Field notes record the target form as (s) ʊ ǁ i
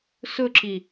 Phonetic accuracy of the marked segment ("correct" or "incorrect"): correct